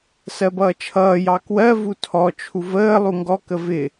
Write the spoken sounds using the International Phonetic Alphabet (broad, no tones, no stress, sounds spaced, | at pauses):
s ɜ b ʌː t͡ʃʰ ʌː j ɑ k w ɜ v u tʰ ɔ t͡ʃʰ u v əː lˠ u ŋ ɡ ɔ k ə v ɪ